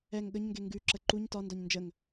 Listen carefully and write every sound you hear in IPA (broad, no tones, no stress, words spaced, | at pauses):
ɛŋ ɠəɲŋɡe ŋɡʉǁə ǃuɲ tɒndɒɲ nd͡ʒəŋ